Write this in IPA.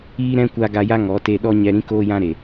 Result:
iː˦ ɾ ɛ̃˦ kʷ a˧ ɡ a˧ j a˦ ŋ ɔ˨˦ t e˧ ɗ ɔ˦ ɲ ɛ˧ ɾ ĩ˦ k oː˦ j ã˦ ɾ e˨

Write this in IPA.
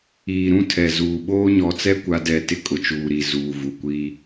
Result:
iː˨ ɾ ũ˦ tʰ ɛ˨ z uː˨ ɓ oː˦ ɲ ɔ˨ t͡s ɛ˦ kʷ a˦ d ɛ˦˨ t ɪ˦ kʼ ʊ˨ t͡ʃ uː˨ ɾ i˨ z uː˨ v u˨ kʷ i˦

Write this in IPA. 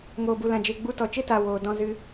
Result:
ŋ oː˨ b u˨ l ã˨ d͡ʒ e˨ ɡ͡b u˧ t ɔ˨ t͡ʃ e˦ t a˨ w oː˨ d ɔ̃˧ z ɨ˧

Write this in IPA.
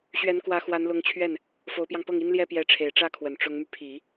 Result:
ɕ ɥ ɛ˧˥ n k w ä˧˥ x w a˧˥ n l ʊ˧˥ ŋ t͡ɕʰ ɥ ɛ˥˩ n | f o˧˥ ʊ̯ p j ɑ˧ ŋ p ɤ˥˩ ŋ i˥ n l j ɛ˥ p j ɛ˧˥ ʈ͡ʂʰ e˨˩ ɪ̯ ʈ͡ʂ ä˥˩ kʰ w ə˨˩ n ʈ͡ʂ ʊ˧˥ ŋ m y˧ pʰ i˨˩˦

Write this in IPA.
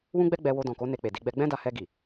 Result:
w ũ˦ ɡ͡b ɛ˦ ɡ͡b ɛ˧ w o˧ d ɔ̃˨ k o˨˦ n e˧ k͡p e˨ d i˧ ɡ͡b ɛ˦ ɡ͡b ɛ̃˦ d a˧ h ɛ˧ ɡ i˨

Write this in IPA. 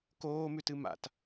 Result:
k oː m ʉ t ɨ m a̰ t

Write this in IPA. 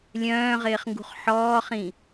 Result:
lʲ œ̃ː ʁ ɪː χ ŋ ɡ ṳ χ ħ ɔː χ ĩ

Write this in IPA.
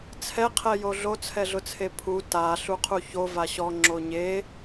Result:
t͡sʰ ɛ qʰ ɛ j o ɮ o t͡sʰ ɛ ɮ ʊ t͡sʰ e pʰ u t a ɬ u qʰ u ç o v a ɕ ɔ ŋ͡ǁ o ɲ e

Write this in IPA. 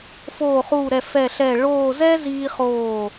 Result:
f oː˧˩ χ uː˧˩ ɾ ɛ˧˩ f ɛ˧˩ ɬ ɛ˧˩ ɭ oː˥˧ z ɛ˥ z iː˧ χ oː˧˩

